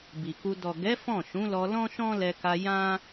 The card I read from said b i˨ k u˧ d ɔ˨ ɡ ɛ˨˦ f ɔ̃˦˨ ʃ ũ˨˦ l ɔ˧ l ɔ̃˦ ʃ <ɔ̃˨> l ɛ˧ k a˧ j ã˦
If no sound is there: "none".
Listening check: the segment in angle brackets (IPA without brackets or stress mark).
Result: ɔ̃˦